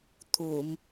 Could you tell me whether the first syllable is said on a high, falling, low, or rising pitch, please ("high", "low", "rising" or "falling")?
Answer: low